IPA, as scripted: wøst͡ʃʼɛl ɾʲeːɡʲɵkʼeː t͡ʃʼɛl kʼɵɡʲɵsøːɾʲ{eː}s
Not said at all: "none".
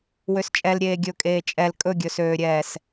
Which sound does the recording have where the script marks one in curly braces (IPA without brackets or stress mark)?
ɛː